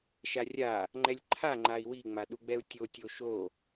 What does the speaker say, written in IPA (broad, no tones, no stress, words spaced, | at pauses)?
ʃarʲa | ŋ͡ǃɛlʲǃʰa ŋ͡ǃai̯wi ŋ͡maɗuɡ͡bɛu̯tʲo tʲoʃo